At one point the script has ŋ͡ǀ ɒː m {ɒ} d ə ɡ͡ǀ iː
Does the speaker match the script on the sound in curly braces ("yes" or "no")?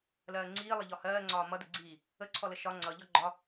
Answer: no